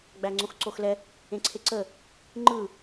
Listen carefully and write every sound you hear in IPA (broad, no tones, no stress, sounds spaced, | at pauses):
ɡ͡b æ ŋ͡ǀ õ x ǀ o x l ɛ | ẽ ǀʰ e ǀ ə | ŋ͡ǃ ɯ